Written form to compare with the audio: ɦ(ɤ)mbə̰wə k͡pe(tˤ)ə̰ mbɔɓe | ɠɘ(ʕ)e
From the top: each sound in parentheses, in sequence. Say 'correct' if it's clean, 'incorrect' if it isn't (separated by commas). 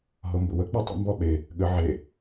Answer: correct, correct, correct